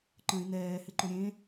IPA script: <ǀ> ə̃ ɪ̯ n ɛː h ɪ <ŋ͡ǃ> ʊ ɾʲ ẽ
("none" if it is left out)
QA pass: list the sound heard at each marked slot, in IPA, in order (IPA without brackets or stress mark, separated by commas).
ǃ, ǃ